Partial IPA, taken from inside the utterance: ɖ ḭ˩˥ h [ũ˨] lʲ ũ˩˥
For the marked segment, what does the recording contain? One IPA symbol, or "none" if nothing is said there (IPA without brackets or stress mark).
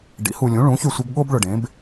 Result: u˨